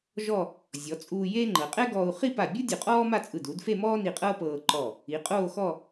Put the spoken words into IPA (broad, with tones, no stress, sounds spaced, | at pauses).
ʒ ɔ˥˧ | zʲ ɔ˩˧ t͡sʼ uː˧ j eː˥ ŋ͡ǃ ɤ˩˧ qʼ ɛ˥ ɡ ɔː˧ u̯ χ i˥˧ p a˧˩ bʲ u˥ dʲ o˧˩ qʼ ɔː˥ m a˥˧ t͡sʼ ɯ˧˩ d u˩˧ d f e˥˧ m ɔː˥ n i˧ qʼ ɤː˥ p ɤː˧ ǃ ɔ˧˩ | i˩˧ qʼ oː˥˧ x ɔ˥˧